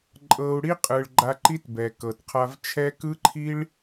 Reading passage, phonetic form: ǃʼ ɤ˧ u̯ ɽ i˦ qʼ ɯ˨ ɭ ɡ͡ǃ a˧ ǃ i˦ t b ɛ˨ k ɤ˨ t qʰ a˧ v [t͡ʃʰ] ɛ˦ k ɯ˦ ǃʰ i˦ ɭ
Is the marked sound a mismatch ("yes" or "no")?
no